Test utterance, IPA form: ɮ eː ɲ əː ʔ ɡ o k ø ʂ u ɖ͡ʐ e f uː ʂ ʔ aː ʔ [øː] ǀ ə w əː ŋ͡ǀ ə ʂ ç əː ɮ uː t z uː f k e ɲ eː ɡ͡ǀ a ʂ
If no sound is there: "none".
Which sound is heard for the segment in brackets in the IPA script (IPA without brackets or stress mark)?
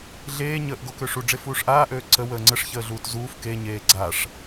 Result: øː